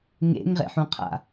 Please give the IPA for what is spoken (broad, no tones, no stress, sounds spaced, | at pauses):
ŋ ḛ ŋ ʁ ḛ ħ ũ qʰ a̰